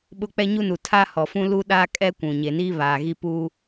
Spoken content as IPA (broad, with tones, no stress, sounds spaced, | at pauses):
ɓ ʊ˦ k͡p ɛ˦ ɲ u˦ n u˨ tʰ a˦ h ɔ˨ f ũ˦ l u˦ ɗ aː˦ kʼ ɛ˦ kʷ ũ˨ ɲ e˨ n iː˦ β aː˨ ɣ i˦ p uː˦